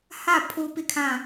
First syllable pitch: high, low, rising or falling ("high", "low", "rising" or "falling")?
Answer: falling